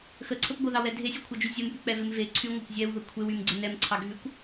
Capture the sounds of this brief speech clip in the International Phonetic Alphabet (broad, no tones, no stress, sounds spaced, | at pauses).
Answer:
x ə ǀʰ ə p ɡʷ ə ð ɑ w ɛ dʱ e sʲ ɛ kʷʰ ɑ d͡ʒ y zʲ ə m p y k͡p ɛ v e m v e ǀʰ y ŋʷ ɑ kʷ zʲ ɛ w ð ə kʷʰ e w y m ɡ͡ǀ ɛ n ɛ m ǀʰ ɑ ɡʱ y kʷ